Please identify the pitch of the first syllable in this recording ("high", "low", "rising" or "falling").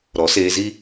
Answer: rising